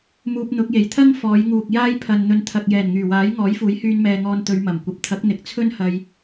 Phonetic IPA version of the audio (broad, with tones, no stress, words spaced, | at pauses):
muː˧p̚n̪ʊ˨˥k̚je˨˩j t̪ʰɐ˥ŋ fɔː˨˧jŋuː˨k̚ jaː˥jpʰɐ˨n n̪ɵ˨nt̪ʰɐ˨k̚jɛː˨˩n ŋyː˨˩waː˨˥j ŋɔː˨˥jfuː˨˥jhyː˧n mɛː˨ŋɔː˧nt̪ɵ˨˧ɥ mɐ˨˩mkʷɐ˨˥p̚ t̪ʰɐ˨˥k̚n̪ɪ˨k̚t͡sʰɵ˥nhɐ˧j